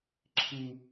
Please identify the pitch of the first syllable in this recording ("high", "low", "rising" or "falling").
high